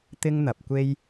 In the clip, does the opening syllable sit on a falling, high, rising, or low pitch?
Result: high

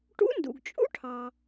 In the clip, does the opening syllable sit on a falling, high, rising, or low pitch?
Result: rising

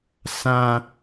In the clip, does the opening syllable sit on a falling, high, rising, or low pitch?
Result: high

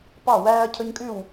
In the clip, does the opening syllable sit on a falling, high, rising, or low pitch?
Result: falling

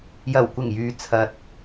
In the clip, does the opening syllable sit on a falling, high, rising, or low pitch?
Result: low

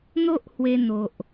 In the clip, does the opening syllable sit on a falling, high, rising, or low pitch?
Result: high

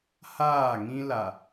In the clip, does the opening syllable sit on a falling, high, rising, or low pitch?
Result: falling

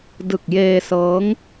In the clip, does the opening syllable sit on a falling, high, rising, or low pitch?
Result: low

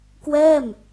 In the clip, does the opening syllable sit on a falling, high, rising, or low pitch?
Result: falling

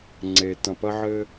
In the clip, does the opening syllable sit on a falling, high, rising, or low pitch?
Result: low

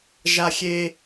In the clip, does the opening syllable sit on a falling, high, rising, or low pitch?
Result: high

